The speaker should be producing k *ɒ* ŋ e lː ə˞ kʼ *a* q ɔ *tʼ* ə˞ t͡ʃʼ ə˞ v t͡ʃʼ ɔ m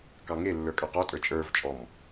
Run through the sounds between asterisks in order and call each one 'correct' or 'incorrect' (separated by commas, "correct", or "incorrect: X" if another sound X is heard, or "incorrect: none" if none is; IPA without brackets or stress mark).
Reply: incorrect: ɑ, incorrect: ɑ, correct